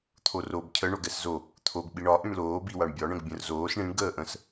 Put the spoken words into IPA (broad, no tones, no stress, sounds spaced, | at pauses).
t̪ʰ o r o b cʰ ə ɳ o ɡ ɛ s z o | t̪ʰ o ɡ ɓ i ɳ ɒ ʔ ĩ ɳ l oː b i w a ɳ bʲ ɒ ɳ ə̃ ɡ bʲ ə̃ r z oː s ɳ ĩ ɳ ɡ əː ʔ ə̃ s